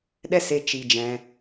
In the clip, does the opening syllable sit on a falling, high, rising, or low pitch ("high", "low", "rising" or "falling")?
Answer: high